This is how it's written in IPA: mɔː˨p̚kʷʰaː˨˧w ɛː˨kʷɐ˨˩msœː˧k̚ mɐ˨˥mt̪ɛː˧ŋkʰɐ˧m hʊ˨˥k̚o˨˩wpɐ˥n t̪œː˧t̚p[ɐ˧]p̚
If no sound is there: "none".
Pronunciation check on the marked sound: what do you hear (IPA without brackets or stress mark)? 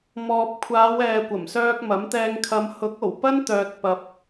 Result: ɐ˧